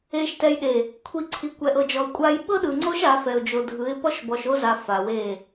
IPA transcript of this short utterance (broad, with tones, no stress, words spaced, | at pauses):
e˨ʃtɛ˨jɗe˨ | kʷʰi˨ǀʰi˨ kʷɛ˨ʔɤ˨d͡ʒɔ˨ə̯kʷʼa˦j ɓɤ˦ɗɯ˨ŋ͡ǀo˦ʃ a˨˦ fɛ˨ʊ̯d͡ʒo˨dʱɯ˨˦ɪ̯ pɔ˦ʃbɔ˨ʃo˦za˨ fa˨we˦˨